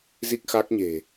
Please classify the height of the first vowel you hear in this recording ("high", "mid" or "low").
high